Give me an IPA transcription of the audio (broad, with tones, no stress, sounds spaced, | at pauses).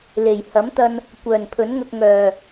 l e˨˩ j h ɐ˨˥ m t̪ ɐ˧ n | kʷ œː˨˩ n pʰ ɵ˨˥ n ŋ ɐ˧ k̚ ŋ œː˨˩